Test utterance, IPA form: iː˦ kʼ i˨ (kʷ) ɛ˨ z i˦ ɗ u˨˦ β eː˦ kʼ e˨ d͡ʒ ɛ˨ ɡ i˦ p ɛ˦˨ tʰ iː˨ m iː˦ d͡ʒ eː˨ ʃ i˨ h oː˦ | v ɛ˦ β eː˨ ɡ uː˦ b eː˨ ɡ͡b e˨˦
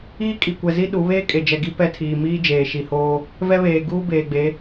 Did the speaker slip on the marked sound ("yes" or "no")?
no